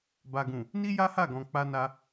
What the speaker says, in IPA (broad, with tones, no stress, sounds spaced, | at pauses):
b a˨ ɡ ũ˨ | n i˦ j a˦ h a˦˨ ɡ ɔ̃˨ k͡p a˧ n a˧